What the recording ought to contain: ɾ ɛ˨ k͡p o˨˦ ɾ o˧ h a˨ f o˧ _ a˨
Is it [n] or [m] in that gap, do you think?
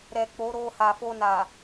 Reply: n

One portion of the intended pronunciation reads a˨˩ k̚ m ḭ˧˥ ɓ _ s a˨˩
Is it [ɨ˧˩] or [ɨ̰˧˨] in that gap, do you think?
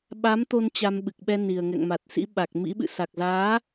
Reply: ɨ̰˧˨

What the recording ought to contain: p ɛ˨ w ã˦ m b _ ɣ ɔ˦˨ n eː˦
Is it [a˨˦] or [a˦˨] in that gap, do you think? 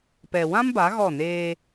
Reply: a˨˦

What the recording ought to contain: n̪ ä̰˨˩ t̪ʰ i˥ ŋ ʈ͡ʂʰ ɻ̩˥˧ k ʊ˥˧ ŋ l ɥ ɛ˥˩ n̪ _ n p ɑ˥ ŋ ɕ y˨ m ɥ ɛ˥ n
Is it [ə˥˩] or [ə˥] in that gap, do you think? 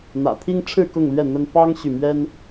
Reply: ə˥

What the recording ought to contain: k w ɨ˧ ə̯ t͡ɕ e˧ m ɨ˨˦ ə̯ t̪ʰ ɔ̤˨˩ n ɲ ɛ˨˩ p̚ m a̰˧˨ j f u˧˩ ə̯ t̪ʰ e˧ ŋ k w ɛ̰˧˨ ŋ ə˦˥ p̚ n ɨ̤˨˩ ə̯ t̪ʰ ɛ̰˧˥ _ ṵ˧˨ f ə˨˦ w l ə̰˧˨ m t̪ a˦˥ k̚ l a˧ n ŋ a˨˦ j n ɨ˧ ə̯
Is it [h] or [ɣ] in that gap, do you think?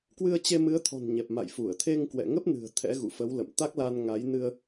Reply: ɣ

